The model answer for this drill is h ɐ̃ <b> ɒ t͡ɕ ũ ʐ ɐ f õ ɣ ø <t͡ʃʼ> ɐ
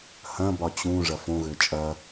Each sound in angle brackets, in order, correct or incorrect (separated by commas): correct, correct